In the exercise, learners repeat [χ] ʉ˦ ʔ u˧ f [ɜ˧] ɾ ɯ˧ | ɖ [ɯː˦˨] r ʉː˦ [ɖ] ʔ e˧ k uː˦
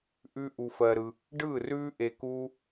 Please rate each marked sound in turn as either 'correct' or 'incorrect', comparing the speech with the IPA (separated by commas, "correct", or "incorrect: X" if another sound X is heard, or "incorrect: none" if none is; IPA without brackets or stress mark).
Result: incorrect: ʔ, correct, correct, incorrect: none